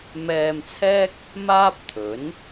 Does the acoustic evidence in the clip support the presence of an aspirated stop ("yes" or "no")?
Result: yes